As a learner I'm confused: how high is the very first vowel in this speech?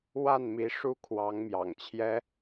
low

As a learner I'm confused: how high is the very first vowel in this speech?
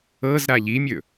mid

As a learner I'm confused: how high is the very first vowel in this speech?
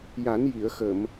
low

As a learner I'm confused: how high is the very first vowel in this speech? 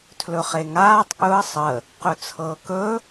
mid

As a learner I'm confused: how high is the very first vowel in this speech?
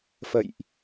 mid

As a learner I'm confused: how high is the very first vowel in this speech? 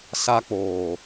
low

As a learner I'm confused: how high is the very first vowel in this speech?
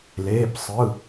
mid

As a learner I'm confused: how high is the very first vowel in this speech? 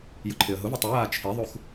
high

